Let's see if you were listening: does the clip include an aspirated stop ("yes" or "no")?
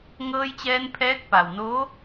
yes